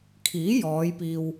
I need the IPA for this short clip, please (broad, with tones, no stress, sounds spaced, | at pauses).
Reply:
kʰ iː˨˥ j ɔː˨˧ j p iː˧ w